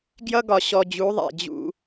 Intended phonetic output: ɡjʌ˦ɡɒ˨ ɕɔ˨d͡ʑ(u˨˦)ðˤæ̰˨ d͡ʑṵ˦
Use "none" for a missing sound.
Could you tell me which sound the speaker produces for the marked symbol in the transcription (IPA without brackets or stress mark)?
u˨˦